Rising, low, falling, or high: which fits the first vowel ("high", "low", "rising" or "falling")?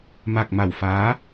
low